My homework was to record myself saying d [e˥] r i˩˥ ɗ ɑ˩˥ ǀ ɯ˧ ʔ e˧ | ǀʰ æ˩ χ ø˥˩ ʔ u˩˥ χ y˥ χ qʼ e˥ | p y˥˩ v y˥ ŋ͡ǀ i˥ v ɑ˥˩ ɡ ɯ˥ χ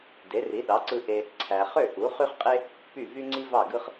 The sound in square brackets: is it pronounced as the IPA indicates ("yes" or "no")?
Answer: no